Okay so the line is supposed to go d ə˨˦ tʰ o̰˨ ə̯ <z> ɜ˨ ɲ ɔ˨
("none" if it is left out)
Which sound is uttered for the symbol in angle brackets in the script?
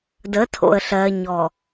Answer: ɬ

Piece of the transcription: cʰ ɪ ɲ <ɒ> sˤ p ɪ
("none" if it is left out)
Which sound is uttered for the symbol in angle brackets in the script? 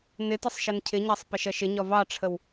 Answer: ɑ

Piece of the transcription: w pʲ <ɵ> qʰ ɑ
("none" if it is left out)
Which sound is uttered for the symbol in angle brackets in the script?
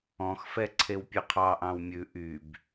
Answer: ɵ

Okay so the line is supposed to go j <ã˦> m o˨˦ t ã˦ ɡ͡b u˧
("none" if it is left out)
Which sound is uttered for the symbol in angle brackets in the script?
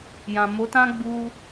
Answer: ã˨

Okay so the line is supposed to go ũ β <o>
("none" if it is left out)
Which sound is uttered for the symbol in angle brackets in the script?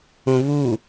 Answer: u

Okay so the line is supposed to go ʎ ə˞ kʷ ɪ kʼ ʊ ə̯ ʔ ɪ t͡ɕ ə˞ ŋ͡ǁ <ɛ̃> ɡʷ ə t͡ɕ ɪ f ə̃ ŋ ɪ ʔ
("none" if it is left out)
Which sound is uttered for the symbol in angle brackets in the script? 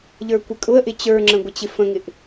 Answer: ə̃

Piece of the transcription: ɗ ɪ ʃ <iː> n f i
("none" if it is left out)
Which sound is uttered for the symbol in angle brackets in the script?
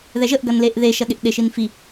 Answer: i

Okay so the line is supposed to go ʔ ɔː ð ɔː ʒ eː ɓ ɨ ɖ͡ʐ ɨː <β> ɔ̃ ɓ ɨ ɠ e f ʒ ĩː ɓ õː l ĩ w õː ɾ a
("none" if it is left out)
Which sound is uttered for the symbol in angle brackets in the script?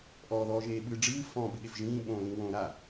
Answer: f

